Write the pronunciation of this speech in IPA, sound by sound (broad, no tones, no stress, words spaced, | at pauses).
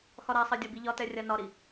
xɒɾasˤɛ dʲɒbiʎɒtɛ rʲanɒɾi